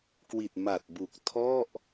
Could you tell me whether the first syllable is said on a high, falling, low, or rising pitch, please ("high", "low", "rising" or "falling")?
low